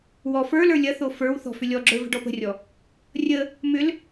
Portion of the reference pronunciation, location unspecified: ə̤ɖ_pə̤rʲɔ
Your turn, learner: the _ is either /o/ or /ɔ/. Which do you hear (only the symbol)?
ɔ